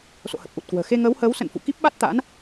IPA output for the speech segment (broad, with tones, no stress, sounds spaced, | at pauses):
s o̰˧˨ h ə˨˩ p̚ ʔ u˨˩ t̚ k w ə̤ː˨˩ x e˧ ŋ əː˨˦ w h əː˨˦ w s ə̰˧˨ n f ṵ˧˨ k i˦˥ p̚ ɓ a˦˥ t̚ t̪ a̰ː˧˥ n